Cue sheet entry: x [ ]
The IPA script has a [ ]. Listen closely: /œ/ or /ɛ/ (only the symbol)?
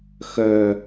œ